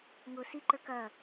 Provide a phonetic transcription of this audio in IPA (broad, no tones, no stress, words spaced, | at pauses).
ŋʊ siǃə˞k ɐ